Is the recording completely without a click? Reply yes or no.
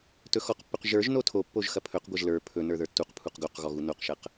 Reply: yes